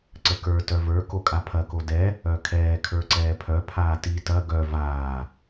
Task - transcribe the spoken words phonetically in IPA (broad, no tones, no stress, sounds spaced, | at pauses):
ǀ ə k ə˞ t œ v ə˞ k o kʼ a pʰ ɐ k o d ɛ | œ kʰ ɛː kʰ ə˞ ǀ ɛː pʰ œ pʰ aː t i t ɐ ɡ œ v aː